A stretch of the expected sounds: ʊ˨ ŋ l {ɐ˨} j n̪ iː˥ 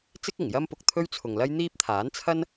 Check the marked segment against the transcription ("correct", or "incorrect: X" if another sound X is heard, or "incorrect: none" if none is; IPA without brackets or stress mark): incorrect: ɐ˥